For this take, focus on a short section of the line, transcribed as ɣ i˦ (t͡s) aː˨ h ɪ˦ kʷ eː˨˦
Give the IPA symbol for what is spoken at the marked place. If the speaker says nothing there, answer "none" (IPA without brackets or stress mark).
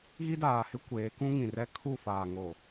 d